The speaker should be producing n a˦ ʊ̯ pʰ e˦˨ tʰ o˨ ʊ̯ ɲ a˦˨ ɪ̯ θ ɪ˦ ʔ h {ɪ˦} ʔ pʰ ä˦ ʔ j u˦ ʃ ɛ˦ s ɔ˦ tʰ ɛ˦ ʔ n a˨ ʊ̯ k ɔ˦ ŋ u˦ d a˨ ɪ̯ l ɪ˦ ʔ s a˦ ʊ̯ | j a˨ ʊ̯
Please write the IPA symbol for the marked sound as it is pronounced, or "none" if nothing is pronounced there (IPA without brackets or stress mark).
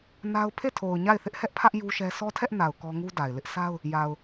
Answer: ɛ˦